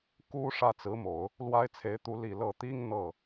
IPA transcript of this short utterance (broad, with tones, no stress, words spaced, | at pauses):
ku˥ ʂä˥˩t͡sɹ̩˧˥mo˨˩˦ʊ̯ | lwa˥ɪ̯t͡sʰe˧˥ɪ̯t̪u˧˥ li˨˩ lɤ˥˩ t̪i˥ŋ n̪ɤ˥˩